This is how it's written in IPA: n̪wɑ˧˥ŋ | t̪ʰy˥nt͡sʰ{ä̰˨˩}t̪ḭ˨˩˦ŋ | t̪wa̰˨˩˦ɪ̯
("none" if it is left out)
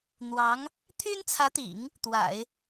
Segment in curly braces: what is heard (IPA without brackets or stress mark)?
ä˧˥